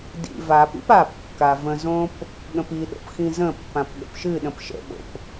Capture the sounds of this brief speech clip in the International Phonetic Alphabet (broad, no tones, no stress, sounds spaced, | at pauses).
d ḭ v a p ḭ p a p kː a v ə̃ z õ p | ɠ ə̃ p i ɗ o̰ p x ĩ z ə̃ pː ã p ɠ ə̰ p ʃ ɨ ɗ ə̃ p ʃ ə̰ ɓ o̰ p